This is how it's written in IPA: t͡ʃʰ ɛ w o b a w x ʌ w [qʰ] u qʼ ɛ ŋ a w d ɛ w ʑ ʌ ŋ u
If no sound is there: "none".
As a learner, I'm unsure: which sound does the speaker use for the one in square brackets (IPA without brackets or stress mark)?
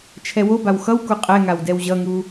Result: k